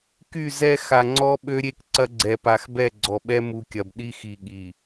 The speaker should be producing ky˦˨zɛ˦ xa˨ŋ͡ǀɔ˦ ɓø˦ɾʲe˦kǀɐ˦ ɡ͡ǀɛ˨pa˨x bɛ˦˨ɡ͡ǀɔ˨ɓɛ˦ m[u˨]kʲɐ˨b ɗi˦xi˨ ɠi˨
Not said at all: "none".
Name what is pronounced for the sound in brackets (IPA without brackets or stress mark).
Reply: u˨